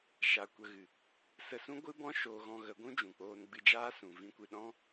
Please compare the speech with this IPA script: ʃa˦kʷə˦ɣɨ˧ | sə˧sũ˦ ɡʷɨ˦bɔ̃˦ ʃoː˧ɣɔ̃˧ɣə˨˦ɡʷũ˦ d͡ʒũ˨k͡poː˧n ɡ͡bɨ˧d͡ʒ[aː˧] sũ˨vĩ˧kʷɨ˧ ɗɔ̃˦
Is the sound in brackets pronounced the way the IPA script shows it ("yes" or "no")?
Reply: no